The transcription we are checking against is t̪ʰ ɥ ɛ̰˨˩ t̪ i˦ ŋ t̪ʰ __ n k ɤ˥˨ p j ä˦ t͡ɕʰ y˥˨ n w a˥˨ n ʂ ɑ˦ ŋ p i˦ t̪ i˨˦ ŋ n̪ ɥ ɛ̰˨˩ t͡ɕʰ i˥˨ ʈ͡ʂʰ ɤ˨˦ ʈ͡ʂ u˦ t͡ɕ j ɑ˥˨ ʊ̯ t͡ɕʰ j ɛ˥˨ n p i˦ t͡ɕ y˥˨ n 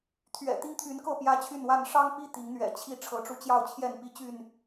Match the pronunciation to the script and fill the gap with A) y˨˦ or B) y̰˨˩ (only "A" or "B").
A